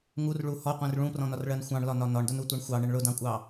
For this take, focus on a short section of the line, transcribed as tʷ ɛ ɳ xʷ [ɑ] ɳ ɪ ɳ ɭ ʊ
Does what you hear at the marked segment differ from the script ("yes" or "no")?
no